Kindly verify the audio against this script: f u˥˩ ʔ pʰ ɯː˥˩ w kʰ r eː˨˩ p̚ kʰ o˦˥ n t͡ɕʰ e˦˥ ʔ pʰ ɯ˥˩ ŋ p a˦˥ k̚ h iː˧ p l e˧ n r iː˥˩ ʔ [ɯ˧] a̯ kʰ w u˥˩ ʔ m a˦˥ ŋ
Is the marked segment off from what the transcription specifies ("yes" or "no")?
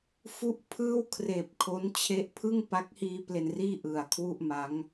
yes